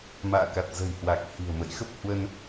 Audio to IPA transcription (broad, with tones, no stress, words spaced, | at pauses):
ma̰ː˧˨ka˨˩t̚zə̤˨˩jhwa˨˩k̚ hi̤˨˩ə̯mə̰˧˨jxə˦˥p̚ hwə˧n